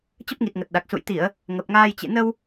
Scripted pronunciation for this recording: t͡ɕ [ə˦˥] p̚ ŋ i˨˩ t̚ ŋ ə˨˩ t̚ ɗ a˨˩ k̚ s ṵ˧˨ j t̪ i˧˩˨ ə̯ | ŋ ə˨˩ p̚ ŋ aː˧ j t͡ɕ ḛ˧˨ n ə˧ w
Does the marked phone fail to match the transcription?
no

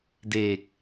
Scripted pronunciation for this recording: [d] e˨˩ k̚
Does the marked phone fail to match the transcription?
no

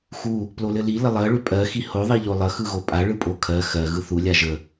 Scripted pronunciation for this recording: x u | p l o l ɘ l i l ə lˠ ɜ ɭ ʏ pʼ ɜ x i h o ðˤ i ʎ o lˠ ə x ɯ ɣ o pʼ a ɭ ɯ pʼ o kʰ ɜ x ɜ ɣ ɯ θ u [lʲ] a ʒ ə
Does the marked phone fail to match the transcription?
no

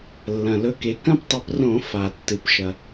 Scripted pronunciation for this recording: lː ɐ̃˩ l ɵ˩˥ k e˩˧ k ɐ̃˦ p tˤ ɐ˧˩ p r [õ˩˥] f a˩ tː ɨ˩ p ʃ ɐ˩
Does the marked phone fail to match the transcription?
yes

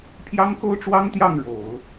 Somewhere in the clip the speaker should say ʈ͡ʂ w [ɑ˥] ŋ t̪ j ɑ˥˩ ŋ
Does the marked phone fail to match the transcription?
no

